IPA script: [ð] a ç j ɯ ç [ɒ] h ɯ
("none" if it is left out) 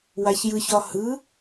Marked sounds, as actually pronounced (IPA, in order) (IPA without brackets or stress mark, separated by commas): w, ɒ